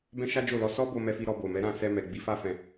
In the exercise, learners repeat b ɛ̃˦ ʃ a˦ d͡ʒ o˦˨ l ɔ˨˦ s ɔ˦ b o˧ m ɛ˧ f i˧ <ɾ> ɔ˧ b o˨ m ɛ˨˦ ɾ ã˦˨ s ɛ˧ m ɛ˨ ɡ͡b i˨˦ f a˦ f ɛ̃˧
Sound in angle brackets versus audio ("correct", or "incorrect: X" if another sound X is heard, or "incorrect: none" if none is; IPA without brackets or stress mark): correct